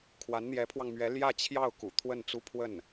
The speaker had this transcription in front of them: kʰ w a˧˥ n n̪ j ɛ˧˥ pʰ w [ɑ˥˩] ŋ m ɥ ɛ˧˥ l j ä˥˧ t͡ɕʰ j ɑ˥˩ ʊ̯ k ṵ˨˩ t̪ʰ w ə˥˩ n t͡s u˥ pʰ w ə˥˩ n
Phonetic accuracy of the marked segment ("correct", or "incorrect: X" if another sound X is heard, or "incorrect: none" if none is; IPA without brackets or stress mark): incorrect: ɑ˧